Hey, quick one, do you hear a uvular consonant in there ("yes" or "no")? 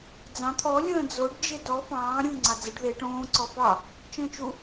no